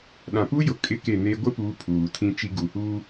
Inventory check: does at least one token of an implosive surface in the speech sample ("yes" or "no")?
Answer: yes